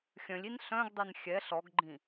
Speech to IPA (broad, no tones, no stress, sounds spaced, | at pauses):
xʲ œ̃ lʲ i n ɬ œ̃ ɡ dˤ ɛ n xʲ ɛ ɬ ɔ ɡ ɡ͡ǃ ĩ